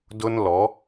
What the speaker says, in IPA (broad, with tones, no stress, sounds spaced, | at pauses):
d ʊ˦ n l ɔ˨˦